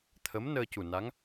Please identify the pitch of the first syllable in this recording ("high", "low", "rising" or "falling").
rising